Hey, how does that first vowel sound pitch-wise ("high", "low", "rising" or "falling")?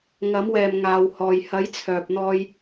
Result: rising